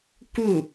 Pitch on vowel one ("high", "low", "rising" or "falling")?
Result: falling